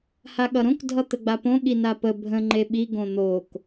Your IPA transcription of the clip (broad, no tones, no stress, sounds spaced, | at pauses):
h a ɠ ʌ ɾ õ k dʱ ʌ t̪ ə ɡ͡b a p õ ɠ i n a p ə bʱ ə̃ ŋ͡ǃ e ɓ i ɡ õ n̪ o k